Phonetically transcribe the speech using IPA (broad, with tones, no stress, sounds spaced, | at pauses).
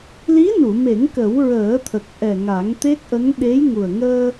l i˧˥ n u˨˩˨ m e˨˩˦ ŋ k ə˨˩˦ w ɹ əː˨˩˦ t̪ʰ ə˨˩ k̚ ʔ ɛ˨˩ ŋ a˨˩˦ ŋ t̪ e˦˥ k̚ ʔ ə˧˥ ŋ ɗ e˧˥ j ŋ u˨˩ ə̯ ŋ əː˧